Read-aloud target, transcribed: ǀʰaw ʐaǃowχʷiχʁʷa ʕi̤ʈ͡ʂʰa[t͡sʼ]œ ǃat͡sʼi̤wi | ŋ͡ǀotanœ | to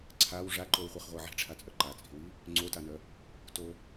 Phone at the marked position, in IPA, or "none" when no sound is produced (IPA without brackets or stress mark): t͡sʼ